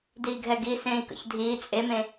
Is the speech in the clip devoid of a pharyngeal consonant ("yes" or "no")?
yes